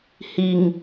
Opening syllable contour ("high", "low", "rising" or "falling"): low